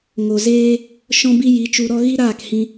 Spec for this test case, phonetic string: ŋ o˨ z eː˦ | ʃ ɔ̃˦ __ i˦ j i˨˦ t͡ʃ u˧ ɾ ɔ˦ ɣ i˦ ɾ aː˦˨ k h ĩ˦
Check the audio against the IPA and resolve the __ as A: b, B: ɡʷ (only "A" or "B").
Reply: A